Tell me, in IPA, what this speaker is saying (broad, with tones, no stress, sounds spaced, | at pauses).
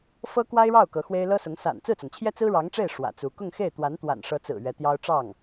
f ɤ˥ k w a˥ ɪ̯ ɻ ɑ˥˩ ʊ̯ k ɤ˧˥ x w e˥ ɪ̯ l ɤ˥ s ʊ˧˥ ŋ s a̰˨˩ n t͡s ɹ̩˥˩ t͡s ʊ˩ ŋ t͡ɕʰ j ɛ˥ t͡s ɹ̩˥ ɻ ɑ˧˥ ŋ ʈ͡ʂ e˥˩ ɪ̯ ʂ w ä̰˨˩ t͡s u˧˥ k ʊ˥˧ ŋ x e˥˩ ɪ̯ t̪ w a˧˥ n t̪ w a̰˨˩ n ʂ ɤ˧˥ t͡s ɹ̩˨˩ ɥ ɛ˧˥ t̪ j ɑ˥ ʊ̯ ʈ͡ʂ ɑ˥˩ ŋ